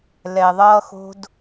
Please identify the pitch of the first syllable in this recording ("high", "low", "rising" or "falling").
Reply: low